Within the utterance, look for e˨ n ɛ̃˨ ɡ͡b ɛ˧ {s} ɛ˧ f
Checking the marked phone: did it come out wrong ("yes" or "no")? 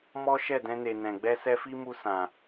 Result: no